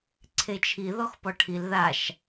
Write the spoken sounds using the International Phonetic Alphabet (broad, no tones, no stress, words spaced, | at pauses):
ǀʰet͡ʃʰi ðɔxpɔʈʰil ðaʃ